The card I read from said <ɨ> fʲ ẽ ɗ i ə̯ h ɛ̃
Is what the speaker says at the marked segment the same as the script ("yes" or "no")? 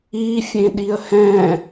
no